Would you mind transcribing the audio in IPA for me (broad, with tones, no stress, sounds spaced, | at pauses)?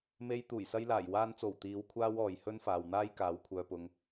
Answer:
m e˧ j t̪ uː˨˩ j s ɐ˧ j l aː˨˩ j w aː˨ n t͡s o˨˩ w t̪ iː˨˧ w kʷʰ aː˥ w ɔː˨ j h ɵ˥ n f aː˨ w n̪ aː˥ j k aː˨˥ w kʷʰ œː˧ p ʊ˧ ŋ